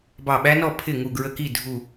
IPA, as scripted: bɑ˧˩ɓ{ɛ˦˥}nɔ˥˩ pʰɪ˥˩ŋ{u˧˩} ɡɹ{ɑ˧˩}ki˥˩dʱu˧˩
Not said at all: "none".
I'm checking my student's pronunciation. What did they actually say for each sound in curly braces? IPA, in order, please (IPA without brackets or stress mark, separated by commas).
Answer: æ˦˥, u˧˩, ə˧˩